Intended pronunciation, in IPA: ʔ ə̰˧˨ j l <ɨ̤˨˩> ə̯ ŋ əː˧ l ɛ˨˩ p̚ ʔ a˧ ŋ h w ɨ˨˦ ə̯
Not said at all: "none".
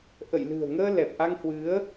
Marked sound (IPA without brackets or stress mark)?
ɨ̤˨˩